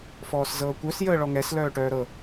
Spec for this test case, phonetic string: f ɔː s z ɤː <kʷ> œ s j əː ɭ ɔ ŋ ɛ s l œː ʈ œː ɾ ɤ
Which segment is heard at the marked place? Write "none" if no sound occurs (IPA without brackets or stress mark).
kʷ